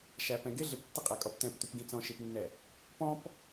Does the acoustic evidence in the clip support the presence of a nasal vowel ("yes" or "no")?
yes